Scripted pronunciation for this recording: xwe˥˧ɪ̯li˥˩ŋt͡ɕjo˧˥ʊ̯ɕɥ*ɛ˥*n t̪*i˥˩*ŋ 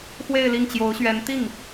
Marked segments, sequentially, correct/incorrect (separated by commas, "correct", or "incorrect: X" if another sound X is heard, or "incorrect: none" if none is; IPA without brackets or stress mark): incorrect: ɛ˧˥, correct